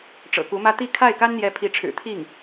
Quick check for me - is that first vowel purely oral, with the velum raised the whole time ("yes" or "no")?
yes